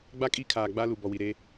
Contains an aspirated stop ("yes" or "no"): yes